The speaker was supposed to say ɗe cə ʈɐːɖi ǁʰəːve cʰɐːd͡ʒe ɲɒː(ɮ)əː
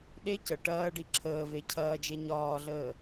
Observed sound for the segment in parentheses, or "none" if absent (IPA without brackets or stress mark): ɮ